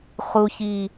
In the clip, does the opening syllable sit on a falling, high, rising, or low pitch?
high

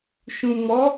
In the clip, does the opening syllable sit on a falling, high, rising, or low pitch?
low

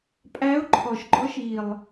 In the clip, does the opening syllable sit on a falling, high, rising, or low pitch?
rising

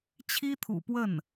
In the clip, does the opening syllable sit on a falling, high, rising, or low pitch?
high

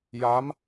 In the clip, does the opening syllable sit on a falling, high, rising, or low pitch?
rising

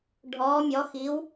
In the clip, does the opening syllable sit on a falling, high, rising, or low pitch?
rising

